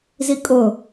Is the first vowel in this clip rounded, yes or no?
no